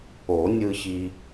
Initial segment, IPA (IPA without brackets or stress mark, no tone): o